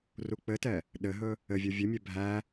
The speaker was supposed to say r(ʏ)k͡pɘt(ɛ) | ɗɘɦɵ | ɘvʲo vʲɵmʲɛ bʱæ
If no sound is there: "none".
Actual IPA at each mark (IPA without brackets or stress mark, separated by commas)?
u, ɛ